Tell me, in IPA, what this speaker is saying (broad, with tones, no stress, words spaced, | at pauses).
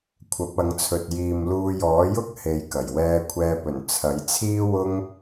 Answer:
kʷʰɐ˨˥p̚ɐ˨˧ŋt͡sʰɵ˨t̚ jiː˨mluː˧jɔː˨˥jʊ˥k̚ he˨˧jkɐ˨˩jwɛː˧ kʷʰɛː˧pɵ˨˩n t͡sʰɐ˨˥jt͡sʰiː˥ wʊ˥ŋ